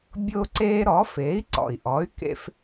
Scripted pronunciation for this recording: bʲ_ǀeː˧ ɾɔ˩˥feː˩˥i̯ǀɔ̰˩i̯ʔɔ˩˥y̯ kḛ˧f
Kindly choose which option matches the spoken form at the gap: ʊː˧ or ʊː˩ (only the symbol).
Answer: ʊː˧